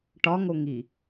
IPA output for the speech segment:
ʈɒŋoŋi

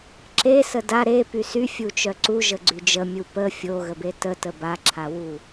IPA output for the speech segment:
ǁesə da ɾepy syfʲut͡ʃœ ǀuʒəɡ͡ǀy d͡ʒəmʲu pə fʲoɣəbe tətə baǁʰawu

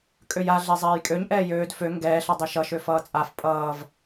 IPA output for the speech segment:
kʼøja ɮezˤɛːjkʼøɲ ʔɛːjøːd fø ŋɡɛːɬʌ dˤiʃʌʃø fʌːt͡sʼaf pʼʌːv

